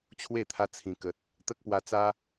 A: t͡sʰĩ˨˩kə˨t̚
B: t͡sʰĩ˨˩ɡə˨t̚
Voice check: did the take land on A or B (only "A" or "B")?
A